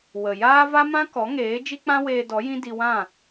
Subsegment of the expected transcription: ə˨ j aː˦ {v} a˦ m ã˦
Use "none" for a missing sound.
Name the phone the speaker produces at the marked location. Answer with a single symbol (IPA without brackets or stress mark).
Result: v